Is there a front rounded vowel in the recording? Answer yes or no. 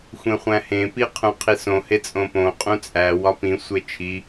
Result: no